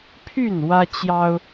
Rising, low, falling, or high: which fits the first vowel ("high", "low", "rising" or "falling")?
falling